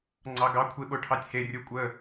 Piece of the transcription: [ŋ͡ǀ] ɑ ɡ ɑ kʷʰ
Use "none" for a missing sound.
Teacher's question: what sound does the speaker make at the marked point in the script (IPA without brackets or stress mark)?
ŋ͡ǀ